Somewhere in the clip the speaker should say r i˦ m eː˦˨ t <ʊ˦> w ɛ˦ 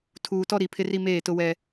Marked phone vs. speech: correct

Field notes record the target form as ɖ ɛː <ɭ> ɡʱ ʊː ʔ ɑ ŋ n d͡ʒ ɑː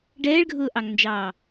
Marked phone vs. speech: correct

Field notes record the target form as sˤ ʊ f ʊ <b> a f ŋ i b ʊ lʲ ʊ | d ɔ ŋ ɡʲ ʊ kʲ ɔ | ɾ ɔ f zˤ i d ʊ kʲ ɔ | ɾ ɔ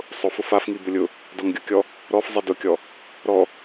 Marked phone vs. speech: incorrect: f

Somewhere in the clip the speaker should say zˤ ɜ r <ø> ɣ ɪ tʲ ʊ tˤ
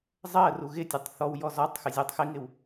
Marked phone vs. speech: incorrect: u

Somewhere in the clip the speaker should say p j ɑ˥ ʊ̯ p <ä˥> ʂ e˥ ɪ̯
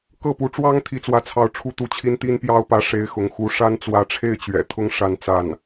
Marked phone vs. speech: incorrect: ä˧˥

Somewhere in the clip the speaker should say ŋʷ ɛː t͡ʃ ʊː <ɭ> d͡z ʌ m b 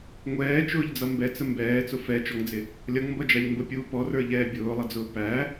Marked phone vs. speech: incorrect: ʎ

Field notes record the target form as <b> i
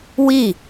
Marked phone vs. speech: incorrect: w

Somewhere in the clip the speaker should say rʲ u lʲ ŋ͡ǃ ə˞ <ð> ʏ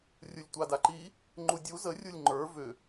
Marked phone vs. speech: incorrect: v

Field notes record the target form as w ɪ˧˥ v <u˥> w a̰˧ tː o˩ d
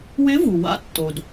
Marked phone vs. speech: incorrect: u˩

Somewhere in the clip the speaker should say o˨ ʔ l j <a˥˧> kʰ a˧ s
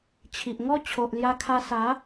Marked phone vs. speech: incorrect: a˧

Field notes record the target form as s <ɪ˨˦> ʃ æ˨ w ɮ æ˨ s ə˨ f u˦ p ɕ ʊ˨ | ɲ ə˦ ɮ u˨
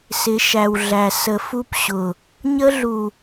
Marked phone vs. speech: correct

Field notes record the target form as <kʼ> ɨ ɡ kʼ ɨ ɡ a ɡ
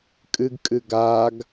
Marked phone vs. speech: correct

